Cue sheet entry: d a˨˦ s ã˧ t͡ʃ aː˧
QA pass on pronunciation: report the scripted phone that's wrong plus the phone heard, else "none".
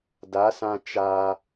none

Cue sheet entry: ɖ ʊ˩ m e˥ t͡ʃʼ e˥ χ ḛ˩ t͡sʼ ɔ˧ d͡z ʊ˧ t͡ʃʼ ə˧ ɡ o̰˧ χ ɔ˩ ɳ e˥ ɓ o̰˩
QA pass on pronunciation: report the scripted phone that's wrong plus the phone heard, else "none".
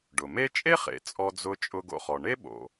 ə˧ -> ʊ˧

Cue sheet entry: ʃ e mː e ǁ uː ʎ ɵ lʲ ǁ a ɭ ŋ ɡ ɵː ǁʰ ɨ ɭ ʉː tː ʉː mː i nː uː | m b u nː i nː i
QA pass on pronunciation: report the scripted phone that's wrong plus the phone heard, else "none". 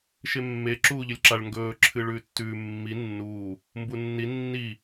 none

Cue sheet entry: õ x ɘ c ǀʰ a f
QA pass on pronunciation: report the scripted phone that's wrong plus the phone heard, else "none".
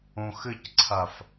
none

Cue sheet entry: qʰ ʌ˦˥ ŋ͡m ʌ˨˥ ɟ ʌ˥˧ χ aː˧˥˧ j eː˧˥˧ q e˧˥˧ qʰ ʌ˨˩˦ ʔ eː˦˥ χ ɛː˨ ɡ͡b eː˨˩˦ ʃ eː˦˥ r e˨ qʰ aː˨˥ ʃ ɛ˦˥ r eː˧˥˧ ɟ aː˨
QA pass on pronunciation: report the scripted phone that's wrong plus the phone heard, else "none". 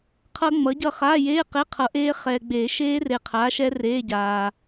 none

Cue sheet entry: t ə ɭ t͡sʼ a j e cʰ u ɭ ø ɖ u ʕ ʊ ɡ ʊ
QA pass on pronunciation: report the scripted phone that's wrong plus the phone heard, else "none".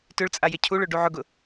ə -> ʏ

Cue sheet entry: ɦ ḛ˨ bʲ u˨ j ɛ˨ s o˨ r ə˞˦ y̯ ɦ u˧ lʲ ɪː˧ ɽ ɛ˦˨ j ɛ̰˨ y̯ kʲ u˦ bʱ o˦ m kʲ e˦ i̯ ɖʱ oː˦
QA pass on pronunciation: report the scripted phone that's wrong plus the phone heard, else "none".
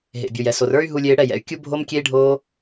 none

